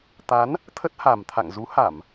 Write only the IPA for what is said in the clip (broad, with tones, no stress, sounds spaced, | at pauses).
t̪ a˨˦ n | t̪ʰ ə˦˥ t̚ h a˨˩ m t̪ʰ a̰˧˨ ŋ z u˨˦ h a˧˩˨ m